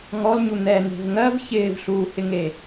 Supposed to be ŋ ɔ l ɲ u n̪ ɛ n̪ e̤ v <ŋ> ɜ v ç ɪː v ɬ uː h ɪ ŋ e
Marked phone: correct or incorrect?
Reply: correct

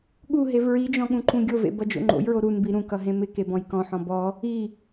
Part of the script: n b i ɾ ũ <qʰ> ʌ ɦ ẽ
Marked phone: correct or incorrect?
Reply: incorrect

